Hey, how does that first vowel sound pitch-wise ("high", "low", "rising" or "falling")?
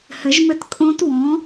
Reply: rising